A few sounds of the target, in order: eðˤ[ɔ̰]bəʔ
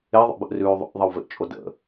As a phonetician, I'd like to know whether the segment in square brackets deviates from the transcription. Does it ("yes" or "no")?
yes